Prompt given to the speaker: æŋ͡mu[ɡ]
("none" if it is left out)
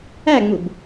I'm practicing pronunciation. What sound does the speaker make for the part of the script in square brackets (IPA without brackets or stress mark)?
b